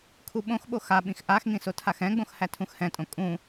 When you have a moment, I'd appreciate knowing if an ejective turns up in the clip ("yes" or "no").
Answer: yes